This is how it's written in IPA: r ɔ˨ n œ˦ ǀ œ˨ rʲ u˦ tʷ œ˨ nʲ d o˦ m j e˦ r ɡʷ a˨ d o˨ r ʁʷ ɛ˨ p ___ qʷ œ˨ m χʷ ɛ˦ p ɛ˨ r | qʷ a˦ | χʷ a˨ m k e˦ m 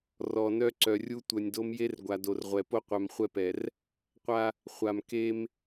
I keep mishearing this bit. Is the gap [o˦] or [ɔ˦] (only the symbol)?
o˦